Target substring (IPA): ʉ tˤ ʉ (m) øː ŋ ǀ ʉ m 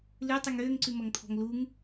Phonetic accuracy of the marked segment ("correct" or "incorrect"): incorrect